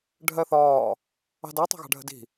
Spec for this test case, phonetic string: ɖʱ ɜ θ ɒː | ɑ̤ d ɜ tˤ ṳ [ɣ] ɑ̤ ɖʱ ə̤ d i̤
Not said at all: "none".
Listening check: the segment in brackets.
ɣ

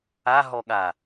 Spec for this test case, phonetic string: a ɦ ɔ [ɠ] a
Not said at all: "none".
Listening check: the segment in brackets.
ɠ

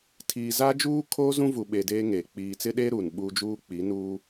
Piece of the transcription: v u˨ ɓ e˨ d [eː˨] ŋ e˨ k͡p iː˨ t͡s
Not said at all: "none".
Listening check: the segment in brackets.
eː˦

